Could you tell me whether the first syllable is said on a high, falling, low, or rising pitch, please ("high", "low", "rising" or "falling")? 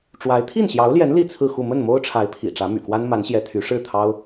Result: rising